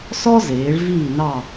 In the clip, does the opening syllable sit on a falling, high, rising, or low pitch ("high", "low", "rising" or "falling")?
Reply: high